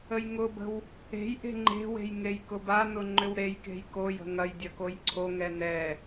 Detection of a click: present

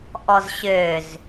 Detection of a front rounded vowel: present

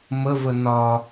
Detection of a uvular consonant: absent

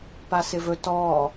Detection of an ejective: absent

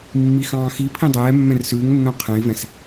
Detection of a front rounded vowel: absent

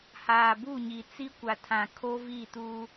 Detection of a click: absent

